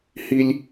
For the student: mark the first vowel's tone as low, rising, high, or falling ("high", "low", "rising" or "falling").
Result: high